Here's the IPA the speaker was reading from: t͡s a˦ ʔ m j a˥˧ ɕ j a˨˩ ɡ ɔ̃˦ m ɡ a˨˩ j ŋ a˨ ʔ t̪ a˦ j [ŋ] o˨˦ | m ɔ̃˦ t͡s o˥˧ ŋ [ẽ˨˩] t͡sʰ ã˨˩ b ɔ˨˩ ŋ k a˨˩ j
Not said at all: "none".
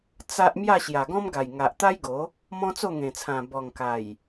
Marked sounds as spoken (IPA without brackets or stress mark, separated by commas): ɡ, ẽ˨˩